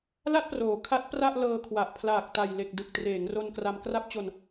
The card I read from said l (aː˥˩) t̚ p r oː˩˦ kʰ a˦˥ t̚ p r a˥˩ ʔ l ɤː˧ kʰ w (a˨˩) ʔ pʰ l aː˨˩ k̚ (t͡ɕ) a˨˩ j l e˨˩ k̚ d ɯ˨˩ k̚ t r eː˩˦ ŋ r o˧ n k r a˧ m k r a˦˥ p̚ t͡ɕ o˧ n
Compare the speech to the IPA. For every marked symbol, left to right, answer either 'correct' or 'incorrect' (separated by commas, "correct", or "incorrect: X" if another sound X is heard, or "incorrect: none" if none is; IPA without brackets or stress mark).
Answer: incorrect: a˥˩, correct, incorrect: t